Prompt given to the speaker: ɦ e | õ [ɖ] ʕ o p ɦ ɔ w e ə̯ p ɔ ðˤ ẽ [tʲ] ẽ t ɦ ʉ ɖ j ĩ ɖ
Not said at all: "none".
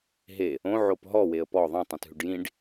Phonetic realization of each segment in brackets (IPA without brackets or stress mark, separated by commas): none, tˤ